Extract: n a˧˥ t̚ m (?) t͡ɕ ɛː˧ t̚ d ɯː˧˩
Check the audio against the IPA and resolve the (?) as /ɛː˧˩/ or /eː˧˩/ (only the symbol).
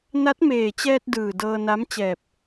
eː˧˩